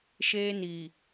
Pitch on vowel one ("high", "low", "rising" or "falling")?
high